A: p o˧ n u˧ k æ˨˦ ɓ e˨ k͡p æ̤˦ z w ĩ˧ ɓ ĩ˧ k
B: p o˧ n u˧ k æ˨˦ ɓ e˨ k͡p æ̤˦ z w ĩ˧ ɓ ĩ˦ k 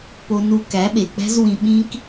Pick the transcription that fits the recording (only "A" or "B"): B